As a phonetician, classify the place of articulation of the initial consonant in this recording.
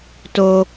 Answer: alveolar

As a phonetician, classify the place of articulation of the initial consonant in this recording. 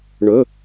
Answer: retroflex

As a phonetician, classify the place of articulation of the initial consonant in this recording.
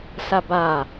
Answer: alveolar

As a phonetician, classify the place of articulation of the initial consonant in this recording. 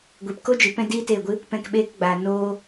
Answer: velar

